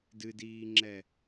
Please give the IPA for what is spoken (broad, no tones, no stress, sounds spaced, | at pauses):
d ɨ d iː ŋ͡ǁ ɛ